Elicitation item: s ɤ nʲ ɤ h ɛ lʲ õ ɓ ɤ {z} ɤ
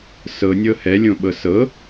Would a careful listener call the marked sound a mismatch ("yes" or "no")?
yes